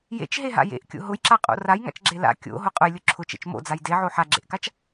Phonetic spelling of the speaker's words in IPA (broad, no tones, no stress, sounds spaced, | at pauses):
j ḛ t͡ʃ ɦ e ɦ a̰ j ḛ ʔ kʲ o̰ ɦ ʊ j ǁ a qʼ o̰ r a j ŋ a̰ t͡ʃ ɡ͡ǁ e l a̰ kʲ o̰ ɦ ʊ qʼ ʊ j lʲ ʊ ǁʰ ʊ t͡ʃ ḛ t͡ʃ m o̰ d͡z a j d e ʕ o ħ a ɡ͡ǁ ḛ ʔ k a t͡ʃ